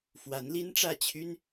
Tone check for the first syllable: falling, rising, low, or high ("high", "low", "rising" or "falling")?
rising